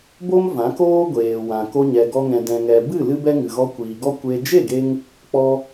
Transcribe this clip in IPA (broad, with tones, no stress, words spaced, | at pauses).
bo˦m vã˨˦koː˦ɡʷeː˨wã˨ ko˧ɲɛ˨ɡɔ˧ŋɛ̃˨ dɛ̃˨ŋɛ˨ bɨ˦˨ lɨ˦bɛ˦ŋɨ˨ɣɔ˧ kʷiː˨ɡɔ˦ kʷe˧ d͡ʒe˦˨ɡe˧ŋ | k͡pɔ˧